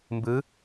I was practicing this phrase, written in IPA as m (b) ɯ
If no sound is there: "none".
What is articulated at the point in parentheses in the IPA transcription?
b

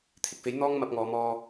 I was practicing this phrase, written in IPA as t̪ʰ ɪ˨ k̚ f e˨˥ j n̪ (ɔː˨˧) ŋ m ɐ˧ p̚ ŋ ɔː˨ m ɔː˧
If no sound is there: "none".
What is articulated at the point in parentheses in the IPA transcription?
ɔː˥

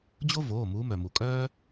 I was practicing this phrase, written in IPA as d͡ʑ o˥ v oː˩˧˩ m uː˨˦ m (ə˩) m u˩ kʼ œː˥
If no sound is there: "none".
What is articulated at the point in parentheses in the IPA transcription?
œ˩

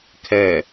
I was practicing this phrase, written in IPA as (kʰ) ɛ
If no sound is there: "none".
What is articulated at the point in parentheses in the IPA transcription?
kʰ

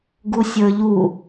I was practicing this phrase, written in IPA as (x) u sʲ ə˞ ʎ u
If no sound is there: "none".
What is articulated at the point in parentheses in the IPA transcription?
ɡ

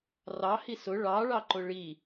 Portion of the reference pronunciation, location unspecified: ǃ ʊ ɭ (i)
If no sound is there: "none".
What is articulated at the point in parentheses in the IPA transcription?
i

